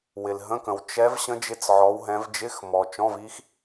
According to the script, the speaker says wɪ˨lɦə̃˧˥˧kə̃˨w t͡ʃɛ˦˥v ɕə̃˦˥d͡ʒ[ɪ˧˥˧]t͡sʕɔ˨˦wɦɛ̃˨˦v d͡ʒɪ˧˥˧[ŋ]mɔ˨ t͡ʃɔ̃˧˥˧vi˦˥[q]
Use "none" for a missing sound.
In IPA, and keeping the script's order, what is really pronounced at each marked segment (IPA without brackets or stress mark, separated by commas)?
ɪ˧˥˧, x, x